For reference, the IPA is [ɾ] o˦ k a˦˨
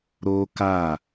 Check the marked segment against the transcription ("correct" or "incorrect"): correct